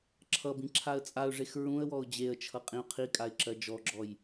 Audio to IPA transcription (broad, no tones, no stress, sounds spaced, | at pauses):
ǁʰ ʌ b ĩ ǁʰ a ə̯ t͡sʼ a ʊ̯ ʐ e x ɹ ũ ə̯ w ɔ ʊ̯ d͡ʑ e ə̯ t͡ʃʰ ʌ qʼ ĩ ʊ̯ qʰ i kʼ a ɪ̯ ǁ ɜ d͡ʒ ɔ ɡ͡ǁ ɔ j